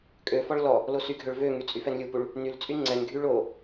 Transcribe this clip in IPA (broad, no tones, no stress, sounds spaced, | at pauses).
kʼ ø f ɔ ɭ l ɔ | l o s y ɡʱ ø ɭ v ø ŋ y t͡sʼ y f ɛ n lʲ u p u ɭ | n y l t͡sʼ y ŋ͡ǀ ɛ n ɡʱ y ɭ o